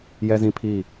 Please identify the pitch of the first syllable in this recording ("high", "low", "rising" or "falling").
high